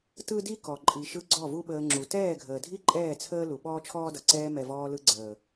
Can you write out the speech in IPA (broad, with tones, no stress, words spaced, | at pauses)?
tɯ˦di˦kɔ˨ ǃʼi˨ʃɯ˧ ɡ͡ǀɔ˦˨vu˦ɓəː˧ ŋ͡ǁu˨tɛː˦˨ɡʱəː˨dʱi˦ ǃʼɛː˦˨t͡sʰəː˦ lu˨ɓɔː˦t͡ʃʰɔː˦dʌ˨ ǀɛː˧mɛ˨ vɔː˧lɯ˧ɡ͡ǀəː˨